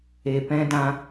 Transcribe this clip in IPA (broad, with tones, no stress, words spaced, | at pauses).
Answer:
e˨pɛ̃˧dã˧